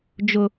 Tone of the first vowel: low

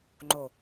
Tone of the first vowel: low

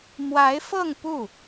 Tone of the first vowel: rising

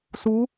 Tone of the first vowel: rising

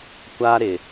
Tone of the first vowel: high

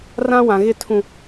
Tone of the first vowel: high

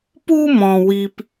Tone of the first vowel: high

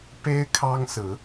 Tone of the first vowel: high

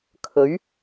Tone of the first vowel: rising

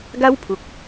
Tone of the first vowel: high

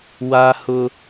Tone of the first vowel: high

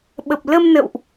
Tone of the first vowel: low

